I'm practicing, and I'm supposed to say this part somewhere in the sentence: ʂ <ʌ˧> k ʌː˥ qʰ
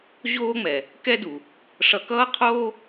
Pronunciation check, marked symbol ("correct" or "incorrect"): correct